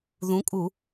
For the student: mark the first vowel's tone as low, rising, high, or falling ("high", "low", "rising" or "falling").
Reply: rising